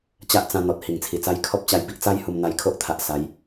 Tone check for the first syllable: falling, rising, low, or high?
high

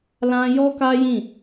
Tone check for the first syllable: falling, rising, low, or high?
high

